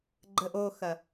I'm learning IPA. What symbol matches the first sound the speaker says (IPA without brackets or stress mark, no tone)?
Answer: ɡ͡ǃ